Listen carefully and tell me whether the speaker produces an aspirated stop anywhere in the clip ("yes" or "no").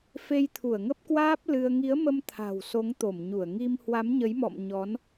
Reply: yes